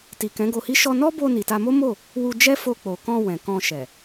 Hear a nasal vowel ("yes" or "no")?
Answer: yes